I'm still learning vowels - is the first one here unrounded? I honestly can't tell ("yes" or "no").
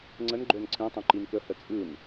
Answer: yes